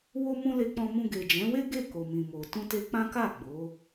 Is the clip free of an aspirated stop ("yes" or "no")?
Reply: yes